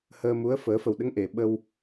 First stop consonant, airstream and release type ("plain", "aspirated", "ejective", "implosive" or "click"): implosive